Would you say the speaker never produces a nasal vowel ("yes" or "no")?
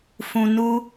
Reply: no